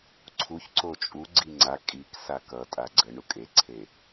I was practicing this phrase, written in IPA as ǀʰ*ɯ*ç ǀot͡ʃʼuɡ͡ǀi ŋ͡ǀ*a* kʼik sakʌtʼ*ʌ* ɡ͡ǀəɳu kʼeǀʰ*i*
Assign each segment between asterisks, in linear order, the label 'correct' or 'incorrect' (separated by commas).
incorrect, correct, incorrect, incorrect